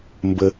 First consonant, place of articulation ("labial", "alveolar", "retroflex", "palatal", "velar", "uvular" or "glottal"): labial